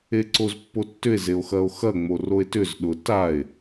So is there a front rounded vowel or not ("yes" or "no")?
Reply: yes